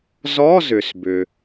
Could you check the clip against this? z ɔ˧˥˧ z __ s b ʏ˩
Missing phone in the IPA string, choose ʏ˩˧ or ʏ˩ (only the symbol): ʏ˩